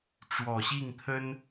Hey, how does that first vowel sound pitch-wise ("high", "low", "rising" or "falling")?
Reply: low